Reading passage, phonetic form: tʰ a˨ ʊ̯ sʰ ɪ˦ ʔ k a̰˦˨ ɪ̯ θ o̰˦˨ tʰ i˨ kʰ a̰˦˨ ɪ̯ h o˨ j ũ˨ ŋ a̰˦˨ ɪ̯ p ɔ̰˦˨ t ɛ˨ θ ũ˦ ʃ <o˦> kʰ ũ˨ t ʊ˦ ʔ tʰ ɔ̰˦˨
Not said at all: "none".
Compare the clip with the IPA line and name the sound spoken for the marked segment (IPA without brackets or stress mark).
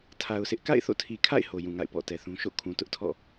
o̰˦˨